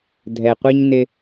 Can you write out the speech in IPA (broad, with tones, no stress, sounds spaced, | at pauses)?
dʱ ɛ˨ qʷ i˦ ɲ n ɪ˦